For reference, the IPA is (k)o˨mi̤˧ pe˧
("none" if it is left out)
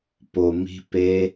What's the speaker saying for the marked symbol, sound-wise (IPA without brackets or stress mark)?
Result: p